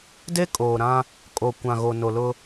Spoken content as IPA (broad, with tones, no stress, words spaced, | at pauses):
de˦kʼoː˨ɾã˦ | kʼo˨ kʷã˨ɣo˨no˨lʊ˦